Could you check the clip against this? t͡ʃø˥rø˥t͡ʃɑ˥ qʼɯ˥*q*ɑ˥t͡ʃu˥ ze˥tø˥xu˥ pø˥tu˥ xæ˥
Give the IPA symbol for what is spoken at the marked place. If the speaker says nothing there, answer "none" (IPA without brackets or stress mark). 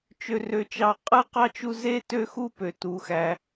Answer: q